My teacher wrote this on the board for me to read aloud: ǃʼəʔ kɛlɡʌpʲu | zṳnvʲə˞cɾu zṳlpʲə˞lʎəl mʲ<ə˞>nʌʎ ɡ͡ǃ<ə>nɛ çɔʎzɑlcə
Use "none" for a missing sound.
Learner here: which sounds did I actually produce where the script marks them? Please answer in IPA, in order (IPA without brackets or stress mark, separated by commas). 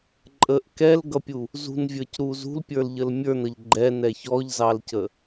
ə˞, ɛ